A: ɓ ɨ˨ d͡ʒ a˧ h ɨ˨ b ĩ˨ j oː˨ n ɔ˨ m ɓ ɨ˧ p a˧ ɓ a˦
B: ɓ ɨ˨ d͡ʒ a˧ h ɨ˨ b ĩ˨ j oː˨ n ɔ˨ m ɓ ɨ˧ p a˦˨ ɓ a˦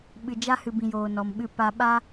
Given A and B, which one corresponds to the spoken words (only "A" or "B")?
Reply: A